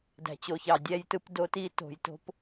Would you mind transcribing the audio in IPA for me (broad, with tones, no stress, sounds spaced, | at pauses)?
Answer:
d æ̤˨ t͡ɕ o˨ ç ɑ˨ dʲ æ˦ j t ɯ˦ p d o˦ t i˦ t o̤˨ j t o̤˦ p